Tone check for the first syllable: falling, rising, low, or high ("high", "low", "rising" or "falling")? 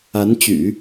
rising